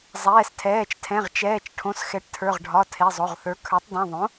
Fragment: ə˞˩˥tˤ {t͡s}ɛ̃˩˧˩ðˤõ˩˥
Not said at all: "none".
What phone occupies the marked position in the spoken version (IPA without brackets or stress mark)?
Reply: d